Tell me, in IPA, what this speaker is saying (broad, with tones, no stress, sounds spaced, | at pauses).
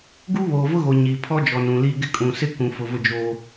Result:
ɡ u˦ β oː˨ v ʊ˦ ɣ o˨ ɲ i˨ pʰ ɔ˦ d͡ʒ ɔ˨ n ũ˨ l i˦ ɡ ɪ˦ kʼ ũ˨ s ɪ˦ k ũ˨ f ʊ˨ v ʊ˦ d͡ʒ o˦